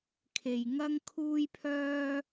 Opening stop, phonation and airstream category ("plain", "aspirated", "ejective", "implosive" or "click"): aspirated